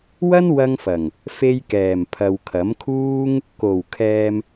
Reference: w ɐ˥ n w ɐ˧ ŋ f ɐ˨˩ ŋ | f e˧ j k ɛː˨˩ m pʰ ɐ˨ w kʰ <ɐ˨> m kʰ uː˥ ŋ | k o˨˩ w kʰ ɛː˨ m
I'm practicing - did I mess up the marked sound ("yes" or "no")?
yes